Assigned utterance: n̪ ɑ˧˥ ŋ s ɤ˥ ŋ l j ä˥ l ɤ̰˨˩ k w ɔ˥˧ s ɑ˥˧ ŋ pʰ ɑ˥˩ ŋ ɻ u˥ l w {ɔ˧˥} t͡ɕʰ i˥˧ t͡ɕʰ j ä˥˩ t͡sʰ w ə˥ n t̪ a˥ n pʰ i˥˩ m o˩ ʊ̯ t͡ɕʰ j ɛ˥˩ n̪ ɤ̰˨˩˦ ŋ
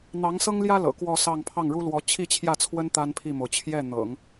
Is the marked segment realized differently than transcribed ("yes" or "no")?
no